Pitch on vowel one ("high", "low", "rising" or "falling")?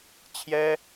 high